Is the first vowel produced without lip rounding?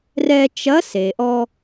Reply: yes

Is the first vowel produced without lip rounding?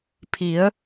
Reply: yes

